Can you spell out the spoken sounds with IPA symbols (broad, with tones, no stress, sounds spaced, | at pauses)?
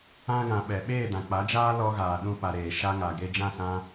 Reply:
ã˧ ɡ ã˨ ɓ ɛ˨ ɓ eː˦˨ d ã˨ k͡p a˨˦ d͡ʒ aː˦ l ɔ˧ ɣ aː˨ ɗ ũ˦ p a˧ ɾ eː˨ ʃ a˧ ŋ a˨ ɡ e˧ d͡ʒ ã˦˨ s ã˦